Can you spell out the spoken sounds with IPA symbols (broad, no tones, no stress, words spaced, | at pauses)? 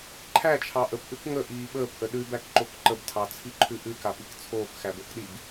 ǃʰæt͡ʃʰɑ ʔəpʔʉk ŋəʔiː ɓəːpʔə ɗʉbækǃok ǃəbtʰɑt͡sʰiǃʰʉ ʔʉkapik t͡sʰoːkxæbəːkɗib